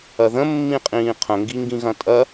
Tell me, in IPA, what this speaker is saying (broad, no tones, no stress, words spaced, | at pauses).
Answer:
ɐðə̃mːĩqʼĩː qʰə̃ŋɡiŋɡĩɣɐ̃ tʼɐ